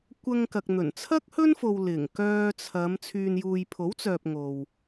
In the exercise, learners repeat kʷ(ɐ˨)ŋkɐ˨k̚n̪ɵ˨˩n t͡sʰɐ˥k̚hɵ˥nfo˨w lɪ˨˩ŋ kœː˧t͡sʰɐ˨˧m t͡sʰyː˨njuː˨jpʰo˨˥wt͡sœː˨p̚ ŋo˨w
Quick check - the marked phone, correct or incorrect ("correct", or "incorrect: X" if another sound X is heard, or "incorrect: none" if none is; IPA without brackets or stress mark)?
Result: incorrect: ɐ˧